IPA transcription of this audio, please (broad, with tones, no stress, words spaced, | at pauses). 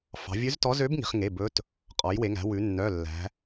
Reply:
fɑ̤˩˧vʲʉ˧˥ztɔ˧˥ zø˧˥b ŋi̤˩˧χ ŋe˩˧˩ bɵ˧˥t | qʼɔ˩˧jwe˩˧ŋæ̤˩˧wʉ˩˧ nːœ˩˧˩lːæ̤˩˧